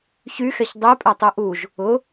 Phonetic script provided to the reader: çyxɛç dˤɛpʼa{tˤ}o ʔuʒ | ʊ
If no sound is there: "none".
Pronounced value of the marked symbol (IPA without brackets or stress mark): tˤ